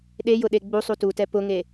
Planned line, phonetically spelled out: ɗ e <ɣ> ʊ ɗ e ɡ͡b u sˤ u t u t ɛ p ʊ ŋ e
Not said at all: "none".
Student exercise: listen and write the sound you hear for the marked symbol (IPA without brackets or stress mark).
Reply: j